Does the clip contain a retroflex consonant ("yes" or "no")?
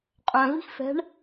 yes